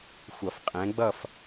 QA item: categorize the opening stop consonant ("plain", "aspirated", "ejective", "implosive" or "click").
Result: ejective